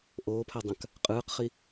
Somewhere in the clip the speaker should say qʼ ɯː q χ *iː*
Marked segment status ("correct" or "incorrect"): incorrect